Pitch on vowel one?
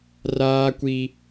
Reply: high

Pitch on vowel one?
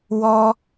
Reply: high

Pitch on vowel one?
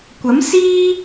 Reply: rising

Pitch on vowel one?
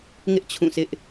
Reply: high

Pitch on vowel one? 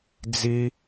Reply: high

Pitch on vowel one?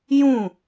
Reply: falling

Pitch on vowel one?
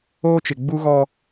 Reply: high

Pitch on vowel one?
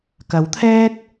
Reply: rising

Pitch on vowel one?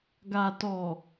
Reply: low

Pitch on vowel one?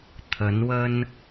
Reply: rising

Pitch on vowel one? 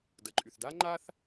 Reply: low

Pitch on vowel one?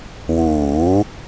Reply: rising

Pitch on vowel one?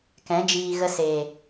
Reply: rising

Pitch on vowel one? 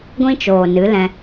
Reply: high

